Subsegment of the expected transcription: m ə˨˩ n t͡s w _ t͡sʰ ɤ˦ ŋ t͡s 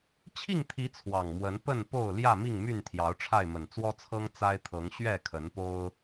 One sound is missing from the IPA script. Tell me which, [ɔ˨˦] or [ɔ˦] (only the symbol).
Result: ɔ˦